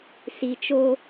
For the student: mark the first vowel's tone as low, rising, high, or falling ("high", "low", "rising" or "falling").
low